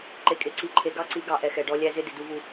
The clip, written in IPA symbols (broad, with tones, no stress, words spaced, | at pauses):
ǃe˨kʼe˨ǀi˨ ǃʰe˨ɡɑ˦ǀi˨˦ ɡɑ˨ʔɛ˨ xɛ˨ɖɔ˦lʲæ˦ zɪ˦ dɪ˨du˦vu˦